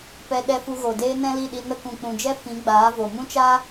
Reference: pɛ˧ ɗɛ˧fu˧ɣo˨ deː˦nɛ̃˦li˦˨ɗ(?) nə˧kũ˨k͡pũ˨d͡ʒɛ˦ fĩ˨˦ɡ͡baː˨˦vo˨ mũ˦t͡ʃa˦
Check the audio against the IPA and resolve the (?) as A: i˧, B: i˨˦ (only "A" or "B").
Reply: A